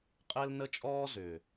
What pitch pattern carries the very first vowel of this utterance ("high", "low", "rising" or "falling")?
high